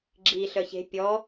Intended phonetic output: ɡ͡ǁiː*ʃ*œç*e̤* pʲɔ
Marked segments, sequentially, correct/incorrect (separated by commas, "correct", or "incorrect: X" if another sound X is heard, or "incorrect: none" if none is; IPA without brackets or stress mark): incorrect: ɬ, correct